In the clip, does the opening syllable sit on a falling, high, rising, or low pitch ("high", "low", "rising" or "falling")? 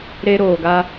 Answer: high